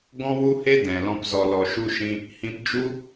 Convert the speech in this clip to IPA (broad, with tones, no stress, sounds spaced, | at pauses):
ɡ ɔ̃˦ w u˦ h e˦ d ɛ̃˨ l ɔ̃˧ p z ɔ˨ l ɔ˨ ʃ u˧ ʃ ĩ˧ | h ĩ˧ p d͡ʒ u˦